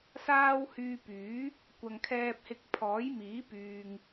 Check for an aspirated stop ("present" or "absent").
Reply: present